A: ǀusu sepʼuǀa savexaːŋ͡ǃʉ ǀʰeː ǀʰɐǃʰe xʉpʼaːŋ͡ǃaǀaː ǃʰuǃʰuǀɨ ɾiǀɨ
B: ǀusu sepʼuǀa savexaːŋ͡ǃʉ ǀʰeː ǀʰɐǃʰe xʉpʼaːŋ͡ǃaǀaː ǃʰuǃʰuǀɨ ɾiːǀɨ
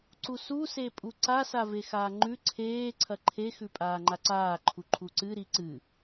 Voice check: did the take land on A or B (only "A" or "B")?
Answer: A